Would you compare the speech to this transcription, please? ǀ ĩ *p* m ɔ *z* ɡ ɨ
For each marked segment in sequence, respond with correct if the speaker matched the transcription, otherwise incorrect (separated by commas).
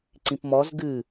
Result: correct, correct